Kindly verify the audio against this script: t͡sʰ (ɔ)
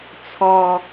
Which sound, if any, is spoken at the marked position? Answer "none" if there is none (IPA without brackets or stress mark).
ɔ